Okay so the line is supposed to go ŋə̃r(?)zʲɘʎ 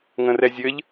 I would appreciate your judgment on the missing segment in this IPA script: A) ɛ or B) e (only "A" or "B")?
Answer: A